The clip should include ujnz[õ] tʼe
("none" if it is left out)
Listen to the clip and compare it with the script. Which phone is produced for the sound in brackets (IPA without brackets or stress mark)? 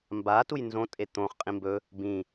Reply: õ